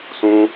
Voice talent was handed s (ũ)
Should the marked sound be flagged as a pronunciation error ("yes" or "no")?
no